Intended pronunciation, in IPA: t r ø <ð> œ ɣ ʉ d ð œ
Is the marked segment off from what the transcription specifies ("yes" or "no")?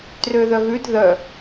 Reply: no